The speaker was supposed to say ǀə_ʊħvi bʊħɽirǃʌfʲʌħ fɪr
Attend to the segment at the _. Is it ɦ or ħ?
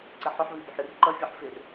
ħ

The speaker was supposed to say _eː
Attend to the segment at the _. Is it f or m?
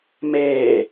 m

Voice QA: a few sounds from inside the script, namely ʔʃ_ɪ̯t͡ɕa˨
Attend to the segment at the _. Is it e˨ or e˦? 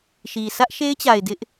e˦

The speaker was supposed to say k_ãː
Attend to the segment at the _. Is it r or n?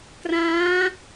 r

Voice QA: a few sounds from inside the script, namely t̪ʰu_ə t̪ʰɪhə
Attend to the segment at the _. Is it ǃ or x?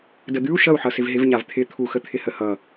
x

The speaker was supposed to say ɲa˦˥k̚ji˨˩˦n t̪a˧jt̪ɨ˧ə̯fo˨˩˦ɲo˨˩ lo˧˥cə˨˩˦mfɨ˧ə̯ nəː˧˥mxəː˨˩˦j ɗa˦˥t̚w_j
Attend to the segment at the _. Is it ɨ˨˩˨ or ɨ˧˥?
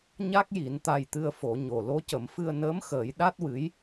ɨ˧˥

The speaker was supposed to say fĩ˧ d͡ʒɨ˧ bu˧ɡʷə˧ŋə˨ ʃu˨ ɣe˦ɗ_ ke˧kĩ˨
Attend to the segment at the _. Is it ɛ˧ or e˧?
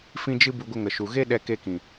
ɛ˧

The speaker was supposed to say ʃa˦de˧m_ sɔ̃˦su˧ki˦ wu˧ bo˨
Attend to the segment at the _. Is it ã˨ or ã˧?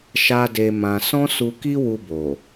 ã˧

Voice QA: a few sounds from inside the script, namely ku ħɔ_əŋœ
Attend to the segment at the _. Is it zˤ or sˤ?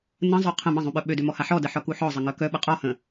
zˤ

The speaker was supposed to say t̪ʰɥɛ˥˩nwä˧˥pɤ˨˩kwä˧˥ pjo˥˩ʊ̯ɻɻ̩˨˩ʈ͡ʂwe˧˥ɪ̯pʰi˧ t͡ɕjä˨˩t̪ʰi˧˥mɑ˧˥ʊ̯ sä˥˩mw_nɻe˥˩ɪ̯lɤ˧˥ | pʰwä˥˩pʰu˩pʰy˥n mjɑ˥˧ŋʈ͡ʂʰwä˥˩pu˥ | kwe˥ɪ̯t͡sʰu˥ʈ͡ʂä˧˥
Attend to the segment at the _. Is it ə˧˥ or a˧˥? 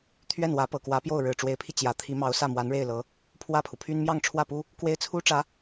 a˧˥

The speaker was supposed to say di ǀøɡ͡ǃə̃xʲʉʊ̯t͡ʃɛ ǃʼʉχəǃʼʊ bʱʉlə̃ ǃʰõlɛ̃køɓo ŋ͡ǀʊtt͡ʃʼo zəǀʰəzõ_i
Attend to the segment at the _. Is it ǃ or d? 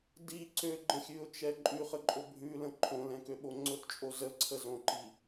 ǃ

